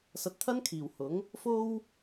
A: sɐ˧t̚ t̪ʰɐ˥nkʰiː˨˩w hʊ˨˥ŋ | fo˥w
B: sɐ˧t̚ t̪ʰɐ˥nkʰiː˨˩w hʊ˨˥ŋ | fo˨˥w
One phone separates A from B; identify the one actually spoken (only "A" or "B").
A